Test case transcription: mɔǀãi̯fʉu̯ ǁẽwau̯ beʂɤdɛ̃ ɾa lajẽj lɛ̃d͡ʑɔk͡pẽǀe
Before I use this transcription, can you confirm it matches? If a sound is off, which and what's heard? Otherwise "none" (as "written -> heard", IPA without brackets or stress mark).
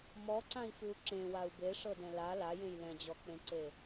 ɾ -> l